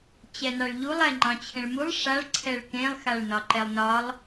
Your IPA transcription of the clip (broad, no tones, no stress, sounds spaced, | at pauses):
t͡ɕ ɛ n ɑ ɭ ʎ u lˠ ɛ ŋ͡ǃ ɑ̃ t͡ɕʰ ẽ ɭ m u lˠ ʂ a ɭ ǀʰ ɛ ɭ k ẽ lˠ x a ɭ n ɒ ǃ ɛ lˠ n ɒ lˠ